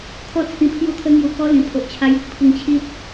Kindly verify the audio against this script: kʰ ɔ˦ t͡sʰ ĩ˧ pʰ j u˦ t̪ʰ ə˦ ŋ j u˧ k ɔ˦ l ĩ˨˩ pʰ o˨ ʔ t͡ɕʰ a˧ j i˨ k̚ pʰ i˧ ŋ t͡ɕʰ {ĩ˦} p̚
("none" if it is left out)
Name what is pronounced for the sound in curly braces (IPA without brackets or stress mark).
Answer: i˦